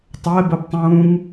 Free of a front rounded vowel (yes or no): yes